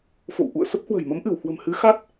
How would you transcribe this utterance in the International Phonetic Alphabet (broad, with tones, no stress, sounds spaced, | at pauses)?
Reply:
f o̰˧˨ w ʔ ṵ˧˨ ə̯ s ə˦˥ p̚ h w ə̤˨˩ j m ə˨˦ m ʔ ɨ˧˩ w h w ə̤˨˩ m h ɨ˨˦ x a˦˥ t̚